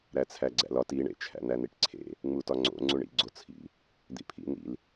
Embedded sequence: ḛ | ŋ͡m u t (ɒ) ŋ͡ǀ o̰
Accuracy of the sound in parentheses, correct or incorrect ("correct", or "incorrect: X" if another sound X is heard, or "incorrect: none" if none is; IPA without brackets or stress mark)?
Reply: correct